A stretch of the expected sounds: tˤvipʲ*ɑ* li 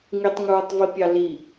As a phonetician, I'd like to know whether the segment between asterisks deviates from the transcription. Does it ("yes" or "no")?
no